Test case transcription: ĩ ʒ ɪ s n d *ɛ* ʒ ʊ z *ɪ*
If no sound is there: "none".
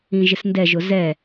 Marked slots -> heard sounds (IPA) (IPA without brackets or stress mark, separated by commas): ɛ, ɛ